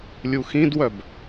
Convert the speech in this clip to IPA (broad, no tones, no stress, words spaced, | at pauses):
lʲuxĩdwœb